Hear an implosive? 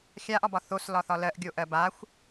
no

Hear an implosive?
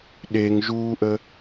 yes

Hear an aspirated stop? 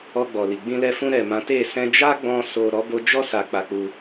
no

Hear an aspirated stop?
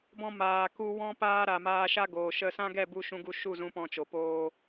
no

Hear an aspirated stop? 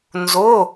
no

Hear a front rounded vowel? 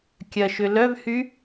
yes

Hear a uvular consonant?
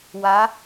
no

